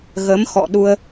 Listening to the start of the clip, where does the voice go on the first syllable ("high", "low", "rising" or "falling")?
rising